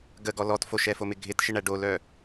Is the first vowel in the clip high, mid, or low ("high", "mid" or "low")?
mid